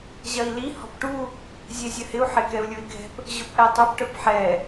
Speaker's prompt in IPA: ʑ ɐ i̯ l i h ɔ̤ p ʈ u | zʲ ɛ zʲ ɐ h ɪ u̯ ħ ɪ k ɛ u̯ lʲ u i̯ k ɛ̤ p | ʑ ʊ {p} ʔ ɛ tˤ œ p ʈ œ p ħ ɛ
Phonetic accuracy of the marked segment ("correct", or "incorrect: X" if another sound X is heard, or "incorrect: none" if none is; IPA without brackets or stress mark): correct